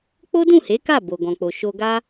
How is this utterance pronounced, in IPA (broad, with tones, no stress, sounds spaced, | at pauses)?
k͡p o˦ d ũ˦˨ h e˨˦ k a˦˨ b o˨ ɡ ɔ̃˨ k͡p o˨ ʃ o˧ ɡ a˦